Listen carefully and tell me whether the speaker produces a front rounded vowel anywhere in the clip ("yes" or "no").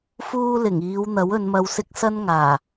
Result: no